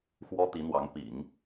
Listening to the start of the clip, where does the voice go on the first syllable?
high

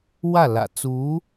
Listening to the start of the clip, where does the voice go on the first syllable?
falling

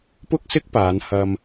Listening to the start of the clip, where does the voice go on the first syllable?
high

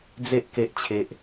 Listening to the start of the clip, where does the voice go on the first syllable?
high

